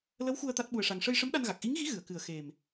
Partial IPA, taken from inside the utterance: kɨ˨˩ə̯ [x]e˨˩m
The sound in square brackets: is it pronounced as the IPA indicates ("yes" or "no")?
yes